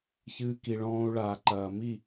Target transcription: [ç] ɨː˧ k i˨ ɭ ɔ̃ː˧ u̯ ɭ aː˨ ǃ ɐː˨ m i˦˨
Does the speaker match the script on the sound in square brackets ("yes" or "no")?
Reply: yes